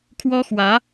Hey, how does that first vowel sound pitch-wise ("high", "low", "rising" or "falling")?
high